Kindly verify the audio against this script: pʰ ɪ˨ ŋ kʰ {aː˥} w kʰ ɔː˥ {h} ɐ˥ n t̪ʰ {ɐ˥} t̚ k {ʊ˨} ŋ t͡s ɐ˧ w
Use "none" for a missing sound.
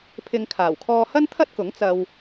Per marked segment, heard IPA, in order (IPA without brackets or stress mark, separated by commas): aː˨˩, h, ɐ˥, ʊ˨˥